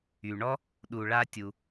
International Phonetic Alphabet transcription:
y˩ɳɔ˥ | ɗu˩ ɭa˥tʲu˩

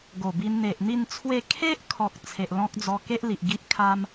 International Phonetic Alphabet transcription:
ɡo˨˩bi˧n n̪e˨ʔn̪i˥˧nt͡sʰwe˥˧ kʰe˦ʔkʰɔ˨k̚ t͡sʰe˨ʔlɔ̃˦k̚d͡zɔ˧ ke˦ʔli˨ʔ ɡi˦ʔkʰa˦m

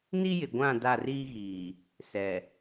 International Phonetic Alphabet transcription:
ni˦jɪ˨ɡʷã˦˨ da˦˨riː˦ɣiː˨ | sɛ˨

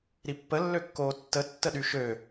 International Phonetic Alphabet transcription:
ɾipːəlːøkːoː tːətːəɗy ʃø

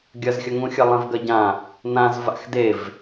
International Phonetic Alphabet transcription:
ɡʲɐzxʲɐŋũxʲɐ lˠẽvɡɐɟã | nãz va̰xdev

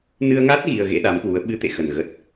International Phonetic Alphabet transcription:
nɨ˧ə̯ŋa˦˥t̚ ɣi˧ə̯ɣḛ˧˥ɗa˨˦mkwu˨˦ə̯ ɓɨ˨˦t̪ḛ˧˨xə˨˩n ɣə˨˩t̚

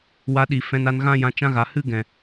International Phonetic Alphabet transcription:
wa˧ɗi˨ fɛ̃˧na˧nɣã˦jã˧ t͡ʃã˧ɣa˨ hɨ˦ɡɛ̃˨

